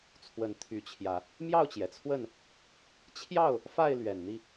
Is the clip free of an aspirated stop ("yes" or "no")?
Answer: no